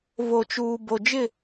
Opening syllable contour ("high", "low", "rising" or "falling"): low